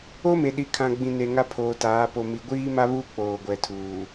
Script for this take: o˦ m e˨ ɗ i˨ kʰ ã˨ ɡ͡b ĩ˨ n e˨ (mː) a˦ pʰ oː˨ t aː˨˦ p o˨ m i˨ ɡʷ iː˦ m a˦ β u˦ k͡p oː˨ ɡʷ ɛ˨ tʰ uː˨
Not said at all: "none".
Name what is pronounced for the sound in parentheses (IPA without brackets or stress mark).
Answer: ŋ